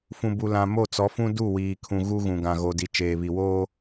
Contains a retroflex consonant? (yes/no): no